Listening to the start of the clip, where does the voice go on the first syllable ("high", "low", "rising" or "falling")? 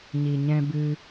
low